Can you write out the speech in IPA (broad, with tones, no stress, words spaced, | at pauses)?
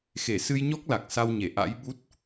xe˧˩sɨ˧jɲɔ˦˥k̚ la˨˩k̚sa˧wɲe˧˩ ʔa̰˧˥jɓu˦˥t̚